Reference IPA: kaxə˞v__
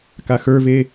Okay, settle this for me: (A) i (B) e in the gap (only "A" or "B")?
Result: B